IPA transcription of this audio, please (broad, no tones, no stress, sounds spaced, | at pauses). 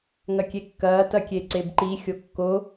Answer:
ŋ ɐ kʲ e kː ɐː t ɐ kʲ e ǀ e b ǃ i xʲ o kː o